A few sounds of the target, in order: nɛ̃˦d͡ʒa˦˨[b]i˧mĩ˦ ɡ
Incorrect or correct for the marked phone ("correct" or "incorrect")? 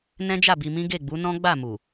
correct